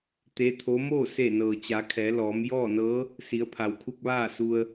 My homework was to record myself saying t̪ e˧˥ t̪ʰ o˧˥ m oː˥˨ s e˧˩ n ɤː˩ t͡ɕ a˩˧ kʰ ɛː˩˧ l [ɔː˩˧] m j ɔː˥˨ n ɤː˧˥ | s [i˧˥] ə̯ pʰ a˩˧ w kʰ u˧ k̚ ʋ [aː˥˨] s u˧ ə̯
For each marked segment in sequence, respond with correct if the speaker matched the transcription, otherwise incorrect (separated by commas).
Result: correct, incorrect, correct